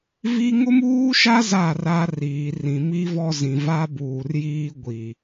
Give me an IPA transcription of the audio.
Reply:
v i˦ ŋ ʊ˦ m uː˦ ʃ a˦ z a˦˨ r a˦ r iː˨ r ĩ˨ m i˦ v ɔ˦ z ĩ˨ v a˦ b uː˨ r j iː˦ ɡʷ i˨

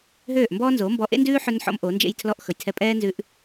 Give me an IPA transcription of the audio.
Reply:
ɦ øː˦˨ ʔ m b ɔː˦ n z oː˨˦ m b ɔ˧ ʔ ḛ˦ n d ʉː˦ ħ ɵ˧ n ħ ɔ̰˧ m ʔ o˨˦ n d͡ʒ ḛ˦ j tʰ l ɔ˦ ʔ x ɵ˨ j tʰ ɛ˧ pʼ ɛː˦ n z ʉ˧ ʔ

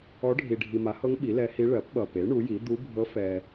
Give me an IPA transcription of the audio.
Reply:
ɔ˧˥ ɖʱ i˨ ɖʱ i˨ m a˩˥ h ɤ˧˥ ŋ ɓ i˩˥ l ɛ˧˥ h i˧˥ ɭ ɜ˩˥ p ɓ ʌ˨ p e˩˥ ɳ u˩˥ j i˩˥ d̪ u˧˥ bʱ ɤ˧˥ f ɛ˨

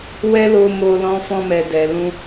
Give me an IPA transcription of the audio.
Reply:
w ɛ˦ l o˧ m o˧ l ɔ̃˧ f ɔ̃˧ m ɛ˨ d ɛ˨ l ũ˧

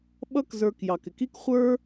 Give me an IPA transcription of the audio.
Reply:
ɓ ʌ˦ k z ə˞˨ k j ɑ˩ k ɪ˩ k i˥ k χʷ ə˞˥

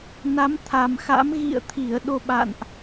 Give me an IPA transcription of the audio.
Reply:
n a˨˦ m t̪ʰ a˨˩ m x a̰˧˥ m ɣ ḭ˧˨ ə̯ t̪ʰ i˧˩ ə̯ ɗ o˧ ɓ a̰˧˨ n ʔ

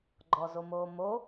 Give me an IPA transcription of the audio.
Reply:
ɡ͡ǃ ɔ z o m oː m o

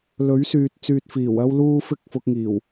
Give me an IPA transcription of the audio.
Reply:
l ɵ˨˥ ɥ s yː˨ t̚ t͡s yː˨ t̚ f iː˨˩ w ɐ˥ w l uː˥ f ɪ˥ k̚ f ʊ˧ k̚ ŋ iː˨˩ w

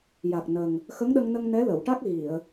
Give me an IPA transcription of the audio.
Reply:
j a˨˩ k̚ n ə˨˩ ŋ | x ə˧˥ ŋ ɗ ə˧ ŋ n ə˧ ŋ n ɛ˧˥ l ə˨˩˨ w ʈ a˦˥ k̚ ɣ i˨˩˨ ə̯

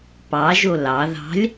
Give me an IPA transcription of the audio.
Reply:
p ɑ ʒ o l ɑ ð ɑ̤ lʲ

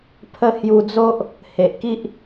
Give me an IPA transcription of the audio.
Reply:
pʰ ə˧ h j u˧ d͡z o˦ ʔ | h e˨ ʔ k i˦ ʔ

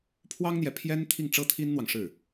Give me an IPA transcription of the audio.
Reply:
pʰ w ɑ˥ ŋ n̪ j ɛ˨ pʰ j ɛ˥ n t̪ʰ i˥˩ ŋ ʈ͡ʂ ɤ˥ t̪ʰ i˥ n n̪ w ɑ˨ ŋ ʂ ɻ̩˥˩

